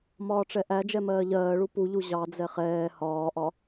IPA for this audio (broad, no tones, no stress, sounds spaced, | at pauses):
m ɒː ʈ͡ʂ ɛ ʔ æ d͡ʒ ɛ m ɜː ʎ ɜː ɭ u p u ʎ u ʑ ɑ d͡z ɛ χ ɛː h ɒː ʔ ɒ